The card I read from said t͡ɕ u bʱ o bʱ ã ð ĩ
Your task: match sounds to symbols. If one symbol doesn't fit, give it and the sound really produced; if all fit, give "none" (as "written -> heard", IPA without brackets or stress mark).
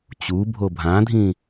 ð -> dʱ